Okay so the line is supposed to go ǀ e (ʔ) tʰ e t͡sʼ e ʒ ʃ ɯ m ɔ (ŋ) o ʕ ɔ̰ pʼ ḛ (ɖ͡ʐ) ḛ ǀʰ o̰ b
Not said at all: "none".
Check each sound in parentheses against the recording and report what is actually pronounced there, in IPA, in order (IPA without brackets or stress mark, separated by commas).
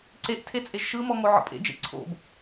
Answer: ʔ, ŋ, d͡ʒ